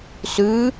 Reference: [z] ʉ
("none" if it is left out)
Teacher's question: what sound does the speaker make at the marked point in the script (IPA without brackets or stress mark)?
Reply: s